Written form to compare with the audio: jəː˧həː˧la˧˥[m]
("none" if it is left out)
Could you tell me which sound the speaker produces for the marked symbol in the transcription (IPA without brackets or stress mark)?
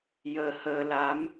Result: m